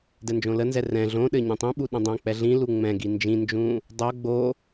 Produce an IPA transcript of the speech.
d ɛ n d͡ʒ õ l ə n z ɛ r ɛ̃ ɮ õ ɗ ɘ ɲ ɛ̃ tˤ ĩ ɓ u ɗ ə̃ dˤ õ k͡p ɛ ɮ ĩ l u ŋ͡m ɛ̃ ɡ i n d͡ʒ ĩ n d͡ʒ ũ | dˤ o ɡ͡b o

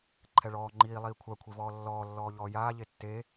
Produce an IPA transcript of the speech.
ǃʰ ɛ ɭ ɔː ŋ͡ǃ iː lˠ iː kʷʰ a kʷʰ i v ɔː lː ɔː lː ɔː ʎ ɔː j aː ʎ e tː e

